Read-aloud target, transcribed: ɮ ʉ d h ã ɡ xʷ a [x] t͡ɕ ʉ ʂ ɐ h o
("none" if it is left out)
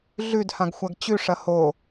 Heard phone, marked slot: ɡ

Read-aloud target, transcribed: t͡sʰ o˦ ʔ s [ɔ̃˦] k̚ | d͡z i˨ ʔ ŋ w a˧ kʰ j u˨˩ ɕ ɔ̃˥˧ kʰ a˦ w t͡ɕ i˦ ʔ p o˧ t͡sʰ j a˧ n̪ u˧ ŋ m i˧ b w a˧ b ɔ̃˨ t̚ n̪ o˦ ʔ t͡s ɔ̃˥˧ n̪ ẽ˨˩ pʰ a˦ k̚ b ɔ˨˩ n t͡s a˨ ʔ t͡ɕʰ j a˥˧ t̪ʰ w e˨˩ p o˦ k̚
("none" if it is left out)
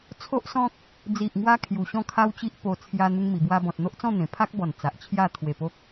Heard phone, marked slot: ɔ̃˦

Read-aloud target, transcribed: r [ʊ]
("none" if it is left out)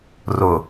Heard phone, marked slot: ʊ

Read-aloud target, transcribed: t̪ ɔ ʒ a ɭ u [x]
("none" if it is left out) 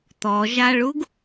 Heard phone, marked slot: ɡ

